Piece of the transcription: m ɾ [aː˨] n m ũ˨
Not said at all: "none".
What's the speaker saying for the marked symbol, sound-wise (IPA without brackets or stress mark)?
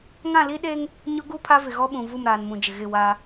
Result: aː˨